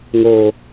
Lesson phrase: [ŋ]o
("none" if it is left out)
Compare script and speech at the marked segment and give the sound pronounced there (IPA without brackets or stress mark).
ŋ